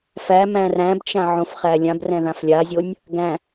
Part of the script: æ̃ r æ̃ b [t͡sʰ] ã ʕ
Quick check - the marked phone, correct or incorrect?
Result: incorrect